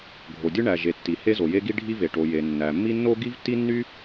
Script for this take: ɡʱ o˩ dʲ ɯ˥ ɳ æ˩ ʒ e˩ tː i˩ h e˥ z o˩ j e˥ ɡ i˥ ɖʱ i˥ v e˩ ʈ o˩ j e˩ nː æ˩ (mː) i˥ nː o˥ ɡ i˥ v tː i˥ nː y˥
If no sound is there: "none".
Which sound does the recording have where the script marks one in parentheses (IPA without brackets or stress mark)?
mː